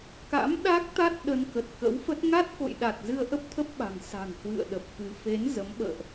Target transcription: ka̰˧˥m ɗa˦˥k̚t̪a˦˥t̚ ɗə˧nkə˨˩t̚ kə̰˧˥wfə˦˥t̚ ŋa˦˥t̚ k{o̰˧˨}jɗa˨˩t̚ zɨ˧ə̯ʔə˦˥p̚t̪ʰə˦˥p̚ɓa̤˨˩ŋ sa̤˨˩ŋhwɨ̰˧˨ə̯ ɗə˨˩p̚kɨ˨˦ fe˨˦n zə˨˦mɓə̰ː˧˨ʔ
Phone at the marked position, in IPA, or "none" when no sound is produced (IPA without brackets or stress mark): o̰˧˨